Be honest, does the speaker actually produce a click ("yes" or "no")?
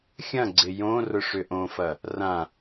yes